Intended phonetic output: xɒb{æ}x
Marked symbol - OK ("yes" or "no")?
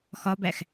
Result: yes